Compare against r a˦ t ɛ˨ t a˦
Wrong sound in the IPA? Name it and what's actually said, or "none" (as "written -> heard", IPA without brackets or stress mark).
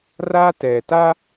none